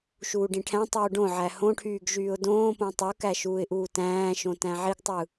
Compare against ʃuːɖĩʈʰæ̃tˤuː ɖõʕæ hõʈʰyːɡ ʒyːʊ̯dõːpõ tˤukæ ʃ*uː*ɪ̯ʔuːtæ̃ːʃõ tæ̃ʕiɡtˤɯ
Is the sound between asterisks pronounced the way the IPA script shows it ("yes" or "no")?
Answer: yes